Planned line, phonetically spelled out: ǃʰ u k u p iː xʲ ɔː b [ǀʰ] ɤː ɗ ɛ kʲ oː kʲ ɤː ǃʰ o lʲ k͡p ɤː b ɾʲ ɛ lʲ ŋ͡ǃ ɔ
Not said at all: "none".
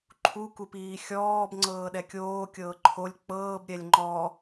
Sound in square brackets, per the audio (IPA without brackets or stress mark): ŋ͡ǀ